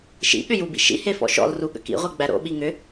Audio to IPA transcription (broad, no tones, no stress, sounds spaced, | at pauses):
ʃ ḭ ɠ ʏ j u b ḭ ʃ ḭ h e f ɔ̰ ʃ ɔ̰ l r u ɠ ə̰ k ḭ ʁʷ e ɡ͡b æ ɾ o̰ ɓ i ŋ ʏ